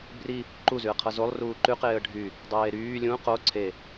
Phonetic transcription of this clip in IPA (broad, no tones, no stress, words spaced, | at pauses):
bri | ǃuzyə̯qʰʌ zolˠ ruːǃyqeːə̯ ɖʱy | dˤeːɾyː lʲũ qo ǀʰe